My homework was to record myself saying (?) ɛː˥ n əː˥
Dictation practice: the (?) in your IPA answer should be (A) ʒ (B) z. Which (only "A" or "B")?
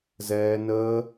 B